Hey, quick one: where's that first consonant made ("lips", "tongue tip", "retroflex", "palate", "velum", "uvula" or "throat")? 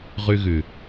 uvula